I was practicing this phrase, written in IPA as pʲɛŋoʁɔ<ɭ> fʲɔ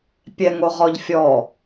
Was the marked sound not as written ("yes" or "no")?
yes